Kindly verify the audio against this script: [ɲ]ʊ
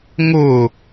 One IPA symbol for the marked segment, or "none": ŋ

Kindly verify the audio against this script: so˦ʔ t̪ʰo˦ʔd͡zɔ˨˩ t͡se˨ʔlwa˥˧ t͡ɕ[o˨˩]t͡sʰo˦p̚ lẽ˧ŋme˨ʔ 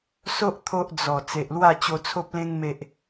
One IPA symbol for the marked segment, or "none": o˧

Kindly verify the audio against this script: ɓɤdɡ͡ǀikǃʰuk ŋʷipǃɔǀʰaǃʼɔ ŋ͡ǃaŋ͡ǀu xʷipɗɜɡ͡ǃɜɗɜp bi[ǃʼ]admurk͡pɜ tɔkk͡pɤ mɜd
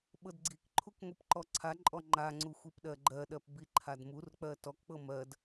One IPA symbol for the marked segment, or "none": ǃʰ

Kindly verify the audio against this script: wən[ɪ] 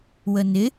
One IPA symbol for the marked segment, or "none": ɪ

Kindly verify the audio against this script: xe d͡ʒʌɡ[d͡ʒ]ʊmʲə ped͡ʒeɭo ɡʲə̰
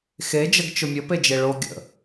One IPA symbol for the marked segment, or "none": t͡ʃ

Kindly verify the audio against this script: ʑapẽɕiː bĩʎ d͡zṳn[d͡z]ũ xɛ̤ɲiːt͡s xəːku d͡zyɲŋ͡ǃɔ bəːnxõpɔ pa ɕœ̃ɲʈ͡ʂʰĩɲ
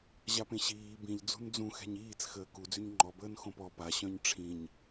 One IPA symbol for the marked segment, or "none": d͡z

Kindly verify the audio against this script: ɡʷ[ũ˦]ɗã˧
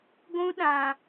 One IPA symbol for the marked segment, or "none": ũ˦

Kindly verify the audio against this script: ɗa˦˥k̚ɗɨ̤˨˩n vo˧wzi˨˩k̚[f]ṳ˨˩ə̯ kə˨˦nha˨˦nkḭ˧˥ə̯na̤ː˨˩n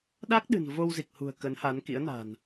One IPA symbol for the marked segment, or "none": h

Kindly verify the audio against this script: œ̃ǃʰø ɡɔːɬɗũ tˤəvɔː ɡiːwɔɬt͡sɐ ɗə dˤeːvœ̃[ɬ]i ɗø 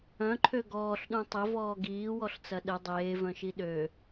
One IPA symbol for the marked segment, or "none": ʃ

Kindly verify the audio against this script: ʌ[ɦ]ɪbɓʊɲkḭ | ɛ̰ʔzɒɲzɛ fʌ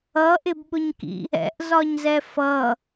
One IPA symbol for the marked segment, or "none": ʔ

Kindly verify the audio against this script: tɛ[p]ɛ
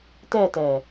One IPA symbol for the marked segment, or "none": t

